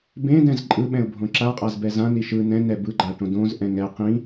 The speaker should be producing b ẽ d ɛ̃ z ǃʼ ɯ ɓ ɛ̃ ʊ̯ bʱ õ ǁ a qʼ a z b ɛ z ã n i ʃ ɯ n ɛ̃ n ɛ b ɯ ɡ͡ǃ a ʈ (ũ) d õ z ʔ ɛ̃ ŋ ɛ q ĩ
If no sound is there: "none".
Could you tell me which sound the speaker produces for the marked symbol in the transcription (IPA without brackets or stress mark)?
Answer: õ